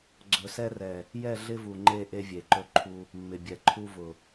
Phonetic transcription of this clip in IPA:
ɡ͡ǀ ɵ˨ s ɛ˦ r ɛ˨ | j ɛ˦˨ ɮ ɪ˦ v u˨ ŋ͡ǃ e˦˨ ʔ e˦ vʲ e˨ ǃ ɵ˦ ǃʰ u˦ | mː ɪ˨ bʲ ɛ˨ ǃʰ u˦ v ʊ˨

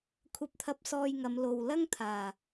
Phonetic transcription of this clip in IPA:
kʷʰ ɐ˧ p̚ t̪ʰ ɐ˧ p̚ s ɔː˧ j ŋ ɐ˨˧ m l o˨ w l ɐ˥ ŋ t̪ʰ aː˨˩

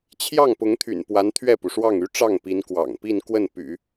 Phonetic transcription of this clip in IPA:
t͡ɕʰ j ɑ˥˩ ŋ p ʊ˧˥ ŋ t̪ʰ y̰˨˩ n p w a˧˥ n t̪ʰ ɥ ɛ˥˩ p u˩ ʂ w ɑ˥˩ ŋ y˥ ʈ͡ʂ ɑ˥˩ ŋ p i˧˥ n k w ɑ̰˨˩ ŋ p i˥˧ n k w ə˥˩ n p y̰˨˩˦

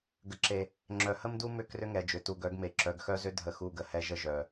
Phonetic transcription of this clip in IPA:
ɡ ə˨ ǁ e˨ | ŋ͡ǁ œ˨ h ə˦ m d u˦ m ʏ˦˨ k r ʏ˦ ŋ ɛ˨ d͡ʒ ʏ˨ t u˨ ɡ œ˨˦ ɡ m e˨ ǁ œ˨ ɡ x œ˦ z ʏ˦ dʱ ə˦˨ x u˦˨ ɡ ə˨ h ɛ˦ ʒ ə˦ ʒ œ˨

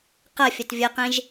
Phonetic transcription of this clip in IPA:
q ɐ fʲ ɐ t vʲ ə q ẽ ʒ

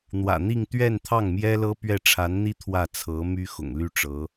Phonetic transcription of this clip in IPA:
n̪ w ä̰˨˩ n̪ i˥˧ ŋ t̪ ɥ ɛ˥˧ n t̪ʰ ɑ˥˩ ŋ m j ɛ˥ l ɤ˥ p ɥ ɛ˥˩ ʈ͡ʂʰ a˧˥ n n̪ i˥ t̪ʰ w ä˥˩ t͡sʰ ɤ˧˥ m y˥ x ʊ̰˨˩ ŋ l y˥˩ ʈ͡ʂ ɤ˧˥

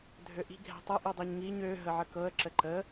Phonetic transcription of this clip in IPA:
dʱ ø ʔ i̤ ɡʱ ɛ̤ tˤ ɘ ʔ i dˤ i ɲ ŋ i ɲ ø ɦ ə ʕ ə k ɤ ə̯ ǁ ə ǃ ə

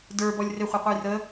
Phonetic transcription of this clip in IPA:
d ə˞ b ɔ lʲ r ɪ χʷ ɑ qʷ ə j r ə

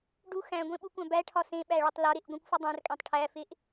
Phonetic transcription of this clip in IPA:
ɖ u x æ̃ ɡʷ ẽ ɓ u kʷ æ̃ b æ ʈʰ ɒ s ẽ ɓ æ ɭ ɒ tˤ l ɒ ɾ e ʔ ɡʷ ĩ kʷ f u dˤ æ̃ r kʼ æ̃ tˤ ʈʰ æ f e ʔ

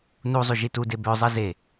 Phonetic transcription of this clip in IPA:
n u zˤ y ʒ i t u d e b ø zˤ ɯ z e

